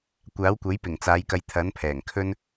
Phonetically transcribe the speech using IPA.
kʷ aː˨˥ w kʷ ɐ˨˥ j p ɪ˨˩ ŋ t͡s aː˨˧ j k ɐ˧ j t̪ʰ ɐ˨˥ n pʰ ɛː˨˩ ŋ kʰ ɵ˧ n

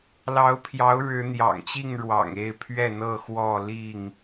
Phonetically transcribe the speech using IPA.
l ɑ˨˦ ʊ̯ pʰ j ɑ˨˦ ʊ̯ ɻ ɻ̩˨˦ n̪ j ɑ̰˨˩ ŋ t͡ɕ i˥˨ ŋ ɻ w ɑ̰˨˩ ŋ e˥˨ ɪ̯ pʰ ɥ ɛ˥˨ n̪ ɤ˥˨ x w ɔ˥˨ l i˥˨ ŋ

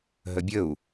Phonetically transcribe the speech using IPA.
ɦ ə bʲ ə u̯

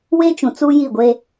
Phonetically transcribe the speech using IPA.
w e˦ t͡ʃ ũ˨ t͡s uː˦ j i˦˨ ɡʷ e˦

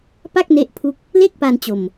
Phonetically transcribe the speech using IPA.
p a˥˩ k̚ n e˦˥ ʔ pʰ u˦˥ k̚ | l e˥˩ k̚ p a˧ n t͡ɕ o˧ m

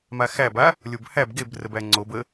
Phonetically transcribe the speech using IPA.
m a x æ b a | lʲ o b h æ b ɡ e b r ə b æ ŋ͡ǀ o b ə

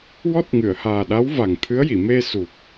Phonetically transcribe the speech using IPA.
w ɔ˦˥ t̚ ŋ ɨ˨˩˨ ə̯ h aː˨˩ ɗ a˧˥ w v a˨˩ ŋ t̪ʰ ɨ˧˥ ə̯ j i˨˩˨ m e˧ s u˨˩ k̚

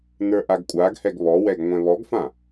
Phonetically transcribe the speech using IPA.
n ə˞ ʔ a ɡ kʷʼ a ɡ h ɛ ɡ β ɔ w ɛ ɡ ŋʷ ɛ̃ β ɔ ɡ f ã

